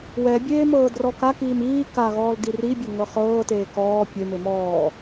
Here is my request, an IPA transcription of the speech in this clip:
w ɛ bʲ eː m ɤː d r ɔ k a k iː m iː k a ɣ ɔː l d i r i bʲ ɤ ŋ ɤ χ ɤː t eː k ɔː pʲ e m e m ɔː

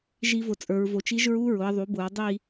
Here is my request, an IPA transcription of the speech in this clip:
ʒ i˦˥ v ʊ˨ t͡sʼ ə˞˨˦ ɹ v o˨˦ t͡ʃ i˦˥ ʒ ɹ u˦˥ ɹ ʊ˨˦ ɐ̯ ðˤ u˨˦ b ʊ˨˦ ɹ dˤ i˥˧

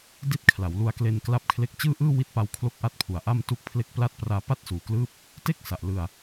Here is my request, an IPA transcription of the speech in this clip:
d i˦˥ t̚ kʰ l a˩˦ w l u˧ a̯ k l e˧ n k l a˦˥ p̚ kʰ l e˦˥ k̚ t͡ɕ ɯː˥˩ ʔ ɯː˥˩ w i˦˥ t̚ p a˧ w kʰ l o˥˩ k̚ ʔ a˥˩ t̚ pʰ u˨˩ a̯ ʔ a˥˩ m t u˦˥ k̚ pʰ l e˦˥ k̚ p l a˥˩ t̚ p r aː˧ p a˥˩ t̚ s uː˩˦ k l ɯː˦˥ p̚ | t e˥˩ k̚ s a˨˩ ʔ l ɯ˧ a̯

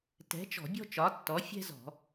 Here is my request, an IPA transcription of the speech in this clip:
t ɛ̤˨˥ t͡ʃ ɔ̤˧˩˧ bʲ ɔ̤˥ t͡ʃ ɒ˨˥ tː ɔ˨˥ fʲ ɛ̤˥ z ɔ̤˧˩˧

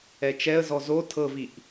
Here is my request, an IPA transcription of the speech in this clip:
ɛ t͡ʃ ɛ ə̯ z ɔ z o tʰ ɤ v i ʔ

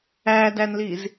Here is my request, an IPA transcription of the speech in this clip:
æ d æ n l i z

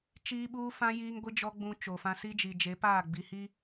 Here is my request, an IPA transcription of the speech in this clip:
t͡ʃ iː˦ ɓ uː˦ f ã˦ j iː˦ ŋ ɡʷ i˦ d͡ʒ ɔ˦ ɡ͡b ũ˦ t͡ʃ o˨ f ã˦ s i˦ d͡ʒ i˨ d͡ʒ e˨˦ p aː˦˨ ɡ͡b i˨ h i˦

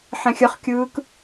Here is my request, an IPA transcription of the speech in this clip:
ħ ɛ̃ xʲ ə χ kʲ ɯː k

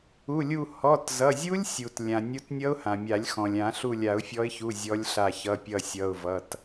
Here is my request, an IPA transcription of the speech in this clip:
u˩˧˩ lʲ u˧˩ h ɔ˩˧˩ t z ʌ˩˧˩ zʲ u˦˥ lʲ sʲ u˩ t lʲ ã˩ nʲ u˨˦ t nʲ ʌ˦˥ ʊ̯ h ã˩ mʲ a˨˩˦ lʲ x ɔ̃˩ lʲ ã˨˩˦ ɬ u˧˩ lʲ a˨˩˦ ʊ̯ fʲ ɔ˨˦ ɪ̯ ç u˩˧˩ zʲ ɔ˨˦ lʲ ɬ a˧˩ ç ʌ˩˧˩ pʲ ʌ˧˩ sʲ ʌ˩˧˩ ʊ̯ v ʌ˩˧˩ t

